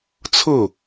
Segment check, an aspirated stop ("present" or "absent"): present